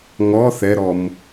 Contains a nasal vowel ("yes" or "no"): no